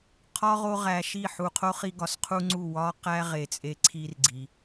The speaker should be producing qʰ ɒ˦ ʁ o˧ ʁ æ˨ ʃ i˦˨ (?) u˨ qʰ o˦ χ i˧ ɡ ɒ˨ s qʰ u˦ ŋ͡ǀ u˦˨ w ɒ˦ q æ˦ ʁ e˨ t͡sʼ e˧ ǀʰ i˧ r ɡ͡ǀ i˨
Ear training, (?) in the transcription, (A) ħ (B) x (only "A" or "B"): A